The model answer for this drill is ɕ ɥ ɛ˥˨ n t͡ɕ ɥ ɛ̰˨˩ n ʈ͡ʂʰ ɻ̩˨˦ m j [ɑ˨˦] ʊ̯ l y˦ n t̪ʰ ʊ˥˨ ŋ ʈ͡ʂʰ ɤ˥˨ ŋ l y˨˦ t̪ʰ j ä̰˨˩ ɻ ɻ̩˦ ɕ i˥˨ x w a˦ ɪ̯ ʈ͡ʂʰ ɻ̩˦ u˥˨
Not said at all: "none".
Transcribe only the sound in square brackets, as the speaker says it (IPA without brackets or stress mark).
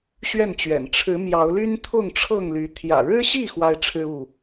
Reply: ɑ˨˦